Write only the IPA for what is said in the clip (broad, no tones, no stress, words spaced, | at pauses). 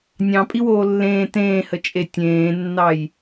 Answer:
nʲɑ̃pʼiwoː lːẽː tẽːhət͡ʃʼe tʲẽːnːɑj